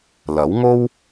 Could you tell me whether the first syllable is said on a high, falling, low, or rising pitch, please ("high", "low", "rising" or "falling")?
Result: rising